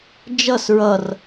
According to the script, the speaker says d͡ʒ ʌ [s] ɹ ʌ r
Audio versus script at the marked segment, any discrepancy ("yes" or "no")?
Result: no